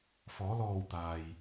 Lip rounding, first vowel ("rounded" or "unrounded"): rounded